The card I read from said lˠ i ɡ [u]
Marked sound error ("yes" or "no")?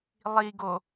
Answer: yes